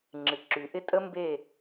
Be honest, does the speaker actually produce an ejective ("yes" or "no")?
yes